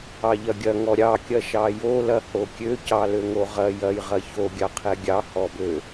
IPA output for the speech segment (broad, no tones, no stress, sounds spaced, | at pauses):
ɑ ʎ ɐ ɡʲ ɐ ŋ ɔ ɾʲ ɑ kʲ ɐ ʃ ɑ j o l ɐ h o kʲ ø c ɑ l ø ŋ o ʁ ɐ j ɐ j ʁ ɐ ç o ɡʲ ɑ qʰ ɛ ɡʲ ɑ h ɔ b ø